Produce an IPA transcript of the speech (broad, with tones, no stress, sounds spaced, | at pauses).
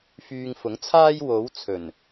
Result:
f yː˧ ŋ f ʊ˨˥ ŋ t͡sʰ aː˥ j w o˨˥ w t͡sʰ ɵ˨˩ n